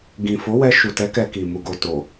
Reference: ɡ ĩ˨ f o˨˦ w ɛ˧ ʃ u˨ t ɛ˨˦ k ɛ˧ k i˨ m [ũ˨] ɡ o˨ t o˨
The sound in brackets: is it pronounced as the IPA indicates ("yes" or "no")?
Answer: no